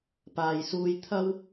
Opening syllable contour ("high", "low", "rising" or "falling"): low